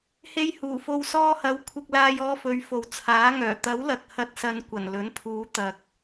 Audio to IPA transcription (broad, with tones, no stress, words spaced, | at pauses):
he˧jhuː˨˩fo˧w sɔː˧hɐ˨˥w kʷʰɪ˧k̚laː˧jɔː˧fɵ˨˧ɥ fo˨wt͡sʰaː˨˥ŋœː˨˩ t̪ɐ˨˥wlɐ˨k̚ hɐ˨t̚sɐ˨nkʷɐ˨˩n lɵ˨˥npʰuː˨˧ t̪ɐ˨k̚